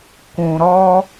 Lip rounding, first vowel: rounded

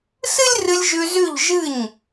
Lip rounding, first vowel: unrounded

